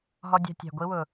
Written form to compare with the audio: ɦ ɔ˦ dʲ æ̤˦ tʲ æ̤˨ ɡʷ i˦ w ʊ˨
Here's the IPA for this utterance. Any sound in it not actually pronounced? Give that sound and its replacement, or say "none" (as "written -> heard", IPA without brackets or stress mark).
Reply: none